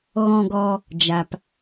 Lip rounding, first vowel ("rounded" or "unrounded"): rounded